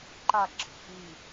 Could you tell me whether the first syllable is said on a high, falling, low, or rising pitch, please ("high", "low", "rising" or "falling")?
falling